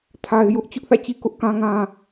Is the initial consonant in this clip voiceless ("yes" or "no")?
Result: yes